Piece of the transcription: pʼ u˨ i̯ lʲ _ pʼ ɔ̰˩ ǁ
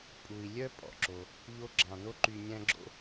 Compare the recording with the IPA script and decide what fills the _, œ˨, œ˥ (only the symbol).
œ˥